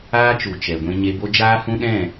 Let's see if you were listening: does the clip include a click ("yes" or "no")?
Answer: no